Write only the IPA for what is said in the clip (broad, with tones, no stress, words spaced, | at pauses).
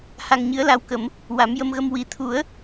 ha˧ŋɲɨ˧˥ə̯la˧wkə˨˩˦m | wa˨˩˦mjə˧mɣə˧m wi˨˩t̪ʰu˨˩˦ə̯